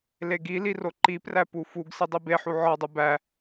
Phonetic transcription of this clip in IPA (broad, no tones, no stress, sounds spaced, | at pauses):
l e ɡ i l i r o ǃ i p r æ p u f u ɡ s i dˤ i b e ħ u ʕ ɒ dˤ u b æ